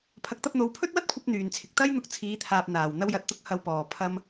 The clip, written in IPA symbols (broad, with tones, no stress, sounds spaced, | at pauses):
pʰ ɐ˨˥ k̚ t̪ ɐ˧ p̚ n̪ o˨˧ w pʰ ɵ˥ t̚ w ɐ˥ t̚ kʷʰ ɐ˧ p̚ n̪ yː˨ n t͡sʰ ɪ˨ k̚ t̪ ɐ˥ j n̪ ʊ˧ k̚ t͡sʰ iː˨˧ t̪ʰ aː˨ p̚ n̪ aː˨˩ w n̪ ɐ˧ w j ɐ˨ t̚ t̪ ʊ˧ k̚ h ɐ˨ w p ɔː˨˩ pʰ ɐ˧ m